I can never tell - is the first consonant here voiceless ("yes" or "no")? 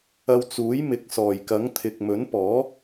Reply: no